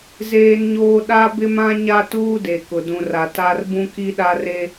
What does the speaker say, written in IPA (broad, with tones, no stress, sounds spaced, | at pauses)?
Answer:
z eː˦ n ɲ oː˦ ɗ a˦ b ɪ˦ m ã˦ ɲ a˦ t uː˦ d e˨ k ʊ˨ d ũ˨ r a˨ t a˦ r b ũ˦ k i˦ ɗ a˦ r e˦